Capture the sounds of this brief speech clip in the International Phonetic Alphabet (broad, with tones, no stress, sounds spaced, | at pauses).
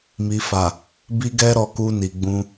m i˨ f a˨ | b i˦ ɡ ɛ˦ ɾ ɔ˧ k u˧ n i˨ ɡ͡b ũ˧